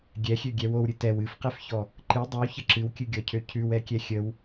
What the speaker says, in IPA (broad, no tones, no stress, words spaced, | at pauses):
ɡʲɛxʲøɡʲɛ wowɾʲɨ tɛw ɨfqɛfçɔ | ǃɨ dˤɨwçə ǁɨwkʲɨɡʲɔcʰø cʰʉwɛkʲɛ xʲəw